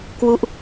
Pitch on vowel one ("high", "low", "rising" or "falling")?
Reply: falling